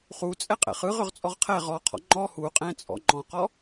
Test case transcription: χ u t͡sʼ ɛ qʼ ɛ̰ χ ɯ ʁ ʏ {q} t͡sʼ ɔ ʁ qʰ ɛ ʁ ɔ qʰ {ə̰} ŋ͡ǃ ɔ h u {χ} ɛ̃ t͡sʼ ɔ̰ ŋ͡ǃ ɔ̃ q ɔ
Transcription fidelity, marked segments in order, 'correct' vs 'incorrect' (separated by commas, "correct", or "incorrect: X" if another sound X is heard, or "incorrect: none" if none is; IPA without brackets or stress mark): incorrect: ʁ, incorrect: ɔ̰, incorrect: qʼ